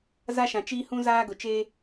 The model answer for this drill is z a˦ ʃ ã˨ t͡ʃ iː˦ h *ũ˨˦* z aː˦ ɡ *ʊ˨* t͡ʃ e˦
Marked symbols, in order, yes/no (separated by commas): no, yes